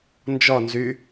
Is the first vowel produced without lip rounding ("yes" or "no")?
no